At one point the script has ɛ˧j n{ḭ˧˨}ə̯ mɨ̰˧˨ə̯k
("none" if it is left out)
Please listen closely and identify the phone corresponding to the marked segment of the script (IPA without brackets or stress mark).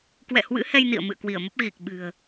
ḭ˧˨